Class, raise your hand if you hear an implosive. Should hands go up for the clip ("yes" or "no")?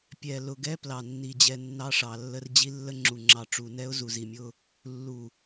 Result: no